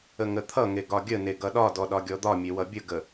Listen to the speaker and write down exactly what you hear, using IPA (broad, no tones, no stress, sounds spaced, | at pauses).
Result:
ə ŋ ə t̪ʰ ʌ ŋ e ɡ ɒ ɡʲ ə n e ɡ ʌ ɗ ɒ d ɔ ɗ ɒ ɡʲ ɔ d̪ ɒ mʲ e w ʌ bʲ ə ɡ ə